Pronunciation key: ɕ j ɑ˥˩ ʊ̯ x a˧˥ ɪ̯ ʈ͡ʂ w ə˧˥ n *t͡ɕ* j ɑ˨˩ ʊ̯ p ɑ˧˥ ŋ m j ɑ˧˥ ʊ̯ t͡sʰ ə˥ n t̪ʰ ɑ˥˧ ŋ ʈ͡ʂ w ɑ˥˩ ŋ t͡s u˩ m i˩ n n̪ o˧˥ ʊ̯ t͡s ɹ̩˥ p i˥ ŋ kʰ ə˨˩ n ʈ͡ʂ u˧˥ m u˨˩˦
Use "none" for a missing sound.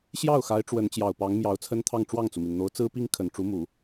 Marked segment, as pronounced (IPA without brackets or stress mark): t͡ɕ